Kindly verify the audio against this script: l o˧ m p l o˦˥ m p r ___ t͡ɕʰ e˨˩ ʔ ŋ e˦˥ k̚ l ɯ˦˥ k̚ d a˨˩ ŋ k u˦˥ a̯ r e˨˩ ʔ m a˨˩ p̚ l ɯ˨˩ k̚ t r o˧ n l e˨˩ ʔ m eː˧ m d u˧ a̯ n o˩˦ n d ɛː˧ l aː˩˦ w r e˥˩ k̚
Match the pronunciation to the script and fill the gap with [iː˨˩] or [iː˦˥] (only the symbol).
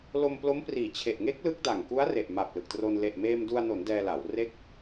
iː˨˩